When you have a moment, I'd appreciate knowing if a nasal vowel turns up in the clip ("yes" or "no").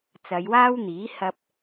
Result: no